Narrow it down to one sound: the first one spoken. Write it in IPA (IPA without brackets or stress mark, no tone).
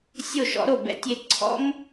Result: sʲ